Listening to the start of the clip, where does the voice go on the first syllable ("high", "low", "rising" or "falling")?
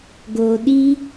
low